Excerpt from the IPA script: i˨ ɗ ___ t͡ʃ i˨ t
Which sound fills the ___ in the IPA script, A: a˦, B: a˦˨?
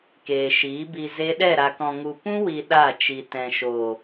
B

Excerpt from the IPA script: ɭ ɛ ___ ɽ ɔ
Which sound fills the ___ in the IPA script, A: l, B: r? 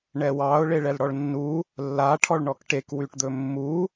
A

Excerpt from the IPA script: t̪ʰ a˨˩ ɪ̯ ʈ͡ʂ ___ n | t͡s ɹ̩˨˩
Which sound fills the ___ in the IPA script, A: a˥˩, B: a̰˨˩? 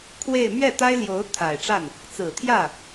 A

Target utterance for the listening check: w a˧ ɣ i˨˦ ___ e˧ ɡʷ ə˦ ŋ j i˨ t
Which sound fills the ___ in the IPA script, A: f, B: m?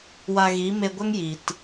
B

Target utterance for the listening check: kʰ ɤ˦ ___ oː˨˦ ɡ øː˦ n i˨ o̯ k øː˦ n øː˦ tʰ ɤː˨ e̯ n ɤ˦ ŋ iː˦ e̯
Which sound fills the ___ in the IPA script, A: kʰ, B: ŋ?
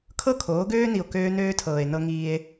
A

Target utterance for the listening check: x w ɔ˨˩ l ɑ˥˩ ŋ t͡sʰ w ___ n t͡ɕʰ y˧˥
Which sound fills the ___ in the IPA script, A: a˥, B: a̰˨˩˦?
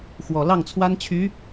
A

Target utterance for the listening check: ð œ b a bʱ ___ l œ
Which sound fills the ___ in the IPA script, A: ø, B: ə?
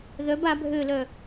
A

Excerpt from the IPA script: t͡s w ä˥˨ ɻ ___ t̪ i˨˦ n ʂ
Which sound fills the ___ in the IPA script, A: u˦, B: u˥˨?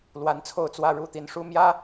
B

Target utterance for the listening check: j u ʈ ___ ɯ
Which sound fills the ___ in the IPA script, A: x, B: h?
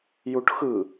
A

